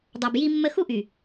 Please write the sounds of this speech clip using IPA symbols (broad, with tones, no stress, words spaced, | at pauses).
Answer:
dˤa˨bji˦mːə˦ xu˦ʔy˨